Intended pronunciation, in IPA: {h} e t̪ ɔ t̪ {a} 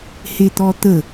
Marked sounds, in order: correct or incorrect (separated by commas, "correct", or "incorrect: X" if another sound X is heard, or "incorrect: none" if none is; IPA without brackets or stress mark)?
correct, incorrect: ə